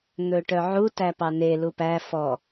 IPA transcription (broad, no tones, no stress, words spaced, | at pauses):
n̪ɵʈœʕu tæpɑne lupæ fɔ